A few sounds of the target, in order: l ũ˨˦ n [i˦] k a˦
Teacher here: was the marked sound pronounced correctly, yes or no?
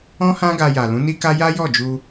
yes